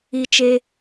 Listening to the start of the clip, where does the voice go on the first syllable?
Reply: high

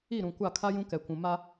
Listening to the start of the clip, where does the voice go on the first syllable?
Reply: falling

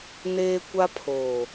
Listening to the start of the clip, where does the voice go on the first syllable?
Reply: high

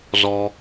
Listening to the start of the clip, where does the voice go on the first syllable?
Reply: high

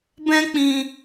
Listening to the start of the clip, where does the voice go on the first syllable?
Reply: high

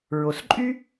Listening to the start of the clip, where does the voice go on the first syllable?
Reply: low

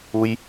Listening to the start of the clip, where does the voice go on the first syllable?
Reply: low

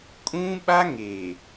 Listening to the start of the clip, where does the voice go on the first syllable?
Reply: high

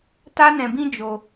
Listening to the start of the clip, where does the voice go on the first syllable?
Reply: high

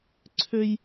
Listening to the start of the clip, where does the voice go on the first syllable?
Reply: high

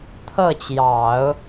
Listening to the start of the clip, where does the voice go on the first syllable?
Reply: falling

